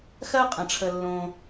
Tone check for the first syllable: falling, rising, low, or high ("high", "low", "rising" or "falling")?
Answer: high